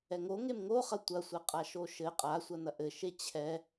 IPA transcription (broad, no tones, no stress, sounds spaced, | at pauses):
ɛ ŋ o ŋ e m ŋ o χ ɐ tʷ ɐ sʷ ɛ qʼ a ʃ o ʃ ɘ qʼ a sʷ ɐ n ɐ ʔ ɘ ʃ e t͡ɕʰ ɛ